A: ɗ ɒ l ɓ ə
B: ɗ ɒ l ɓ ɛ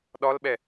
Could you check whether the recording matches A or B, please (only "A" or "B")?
B